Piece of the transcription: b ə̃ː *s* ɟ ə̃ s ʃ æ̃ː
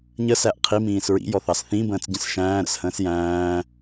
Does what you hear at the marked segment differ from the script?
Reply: yes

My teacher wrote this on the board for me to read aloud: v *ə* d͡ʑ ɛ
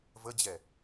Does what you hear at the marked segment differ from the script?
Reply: no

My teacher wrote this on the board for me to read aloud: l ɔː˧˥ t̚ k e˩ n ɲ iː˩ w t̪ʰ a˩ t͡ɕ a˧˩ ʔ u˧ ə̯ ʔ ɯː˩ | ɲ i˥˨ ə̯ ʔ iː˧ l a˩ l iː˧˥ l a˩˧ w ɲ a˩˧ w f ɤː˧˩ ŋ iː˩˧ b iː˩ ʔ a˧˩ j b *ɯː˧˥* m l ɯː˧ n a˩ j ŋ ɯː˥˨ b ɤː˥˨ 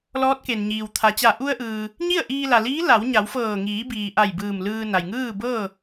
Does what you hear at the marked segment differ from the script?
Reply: yes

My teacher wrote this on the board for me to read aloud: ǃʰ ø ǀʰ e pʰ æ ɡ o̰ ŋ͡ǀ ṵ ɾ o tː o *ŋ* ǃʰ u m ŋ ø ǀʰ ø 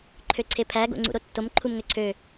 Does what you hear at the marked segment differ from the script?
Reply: yes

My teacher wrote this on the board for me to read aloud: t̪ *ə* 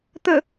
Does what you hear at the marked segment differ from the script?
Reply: no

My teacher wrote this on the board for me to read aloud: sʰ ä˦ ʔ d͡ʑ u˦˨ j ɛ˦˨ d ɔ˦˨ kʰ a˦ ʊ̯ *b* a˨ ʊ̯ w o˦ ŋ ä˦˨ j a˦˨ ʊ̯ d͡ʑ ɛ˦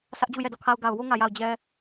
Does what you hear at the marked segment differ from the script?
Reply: yes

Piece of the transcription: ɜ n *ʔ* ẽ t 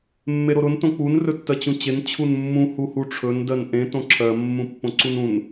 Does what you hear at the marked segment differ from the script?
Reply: no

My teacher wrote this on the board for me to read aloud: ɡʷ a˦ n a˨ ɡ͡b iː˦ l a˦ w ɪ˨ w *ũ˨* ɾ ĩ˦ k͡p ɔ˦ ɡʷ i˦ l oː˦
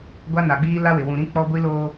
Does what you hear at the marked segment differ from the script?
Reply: no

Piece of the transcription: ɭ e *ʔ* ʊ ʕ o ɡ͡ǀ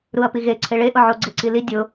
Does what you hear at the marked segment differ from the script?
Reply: no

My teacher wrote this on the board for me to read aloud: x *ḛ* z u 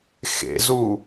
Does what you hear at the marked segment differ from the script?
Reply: no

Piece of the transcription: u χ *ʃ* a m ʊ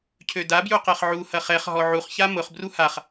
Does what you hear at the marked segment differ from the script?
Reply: yes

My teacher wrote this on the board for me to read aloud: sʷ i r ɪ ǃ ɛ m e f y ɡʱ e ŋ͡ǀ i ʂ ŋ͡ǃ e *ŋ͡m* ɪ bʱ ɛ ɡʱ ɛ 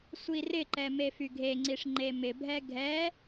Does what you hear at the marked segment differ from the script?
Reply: yes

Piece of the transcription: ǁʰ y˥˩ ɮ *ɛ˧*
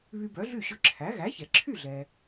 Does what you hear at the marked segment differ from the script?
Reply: yes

